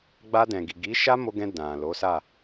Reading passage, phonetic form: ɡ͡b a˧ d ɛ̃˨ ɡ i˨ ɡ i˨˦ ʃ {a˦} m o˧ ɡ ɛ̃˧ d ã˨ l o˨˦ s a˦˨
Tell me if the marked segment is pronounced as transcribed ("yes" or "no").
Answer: yes